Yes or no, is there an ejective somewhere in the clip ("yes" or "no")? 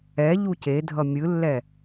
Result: no